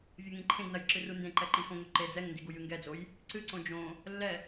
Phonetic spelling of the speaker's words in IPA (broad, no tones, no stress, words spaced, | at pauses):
vʲɐŋĩǃʰẽɡnɐj ǁɨrundẽǃɛ ǃixõŋo ǃed͡zɛŋndi ɡujɨŋɡɛd͡zoj | ǀɨǀõ d͡ʒõ | lːɛ